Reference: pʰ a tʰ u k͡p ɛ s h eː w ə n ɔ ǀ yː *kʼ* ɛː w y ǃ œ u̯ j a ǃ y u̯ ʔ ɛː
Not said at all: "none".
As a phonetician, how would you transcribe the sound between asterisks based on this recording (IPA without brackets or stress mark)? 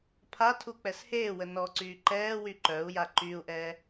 ǃ